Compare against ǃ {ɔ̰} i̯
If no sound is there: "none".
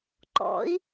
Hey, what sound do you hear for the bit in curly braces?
ɔ̰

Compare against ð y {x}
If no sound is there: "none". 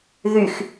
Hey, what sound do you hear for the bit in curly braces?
x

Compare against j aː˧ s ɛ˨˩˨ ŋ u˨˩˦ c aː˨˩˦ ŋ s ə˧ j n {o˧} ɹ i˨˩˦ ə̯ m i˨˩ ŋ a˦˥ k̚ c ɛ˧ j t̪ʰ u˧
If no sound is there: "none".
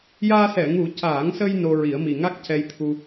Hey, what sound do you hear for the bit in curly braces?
o˧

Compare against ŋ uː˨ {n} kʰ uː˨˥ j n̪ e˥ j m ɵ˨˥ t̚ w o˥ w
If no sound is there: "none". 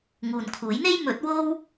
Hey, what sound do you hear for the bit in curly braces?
n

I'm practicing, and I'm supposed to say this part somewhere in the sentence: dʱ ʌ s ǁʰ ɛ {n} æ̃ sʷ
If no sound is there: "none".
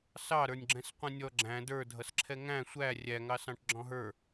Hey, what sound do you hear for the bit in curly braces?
ŋ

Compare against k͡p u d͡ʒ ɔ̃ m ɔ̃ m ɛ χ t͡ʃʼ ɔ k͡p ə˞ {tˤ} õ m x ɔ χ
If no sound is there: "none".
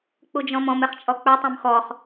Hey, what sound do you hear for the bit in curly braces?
tˤ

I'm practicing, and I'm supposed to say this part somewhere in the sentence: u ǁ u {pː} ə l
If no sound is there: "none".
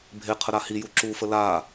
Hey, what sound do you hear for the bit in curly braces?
f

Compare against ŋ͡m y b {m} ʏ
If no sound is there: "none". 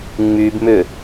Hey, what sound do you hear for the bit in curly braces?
m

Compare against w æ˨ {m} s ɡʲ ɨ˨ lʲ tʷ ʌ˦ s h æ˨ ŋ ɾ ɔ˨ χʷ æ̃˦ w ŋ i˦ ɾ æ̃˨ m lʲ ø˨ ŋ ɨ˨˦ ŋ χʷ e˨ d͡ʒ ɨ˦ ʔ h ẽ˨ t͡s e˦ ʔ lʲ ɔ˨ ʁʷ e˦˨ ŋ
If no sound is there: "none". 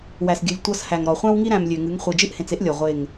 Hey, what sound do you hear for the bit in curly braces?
none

